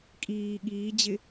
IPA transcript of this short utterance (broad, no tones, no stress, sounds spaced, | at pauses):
kʼ iː ɠ iː d͡ʑ ɪ